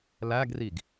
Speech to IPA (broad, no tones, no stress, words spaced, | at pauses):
læɡriɡ